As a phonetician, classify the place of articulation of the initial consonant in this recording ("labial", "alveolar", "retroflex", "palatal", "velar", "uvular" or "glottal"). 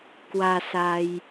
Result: velar